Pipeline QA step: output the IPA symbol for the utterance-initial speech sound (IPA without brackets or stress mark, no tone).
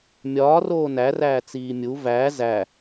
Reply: mʲ